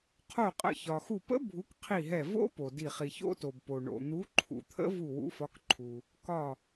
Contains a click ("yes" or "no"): yes